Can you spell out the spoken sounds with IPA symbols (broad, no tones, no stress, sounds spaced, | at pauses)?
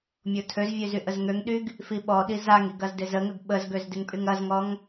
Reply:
mʲ o tʰ ø z vʲ ø z y ʔ ə z ŋ ø ŋ ɗ y ɡ | f i ɓ ɔ ɗ i z a ŋ i ɡ ɐ z d ɪ z ə ŋ ə ɡ ɓ ə z ɡ ø z d ɪ ŋ pʼ y ŋ ɐ z ŋ ɔ ŋ